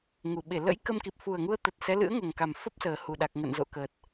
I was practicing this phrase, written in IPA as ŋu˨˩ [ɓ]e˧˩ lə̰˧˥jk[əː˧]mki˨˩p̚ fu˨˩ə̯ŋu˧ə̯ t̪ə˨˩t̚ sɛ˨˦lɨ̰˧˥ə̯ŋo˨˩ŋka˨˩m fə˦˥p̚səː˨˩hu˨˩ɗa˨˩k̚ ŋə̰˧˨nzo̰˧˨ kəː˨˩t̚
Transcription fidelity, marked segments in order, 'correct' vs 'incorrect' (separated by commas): correct, incorrect